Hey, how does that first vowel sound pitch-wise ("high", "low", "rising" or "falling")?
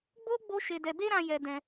high